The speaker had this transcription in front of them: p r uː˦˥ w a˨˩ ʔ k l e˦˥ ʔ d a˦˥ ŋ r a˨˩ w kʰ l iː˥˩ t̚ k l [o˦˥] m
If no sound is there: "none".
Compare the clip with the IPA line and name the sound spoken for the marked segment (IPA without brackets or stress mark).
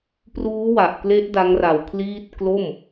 o˥˩